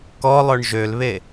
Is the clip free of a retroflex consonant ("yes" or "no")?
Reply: no